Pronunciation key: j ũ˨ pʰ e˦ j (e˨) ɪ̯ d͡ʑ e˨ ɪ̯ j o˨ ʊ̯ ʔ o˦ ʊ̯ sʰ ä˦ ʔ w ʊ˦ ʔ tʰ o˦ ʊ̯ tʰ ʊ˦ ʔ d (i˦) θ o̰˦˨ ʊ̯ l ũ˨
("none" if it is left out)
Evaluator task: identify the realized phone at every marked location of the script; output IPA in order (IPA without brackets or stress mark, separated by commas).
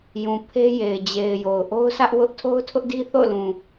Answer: e˨, i˦